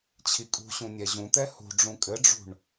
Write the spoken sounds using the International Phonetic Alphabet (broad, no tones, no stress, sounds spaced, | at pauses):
t͡ɕʰ i kʼ ṳ ɕ ũ nʲ ɛ ʑ ũ t̪ ɛ h ṳ ɖ͡ʐ ũ kʼ ɘ ɖ͡ʐ ṳ ɳ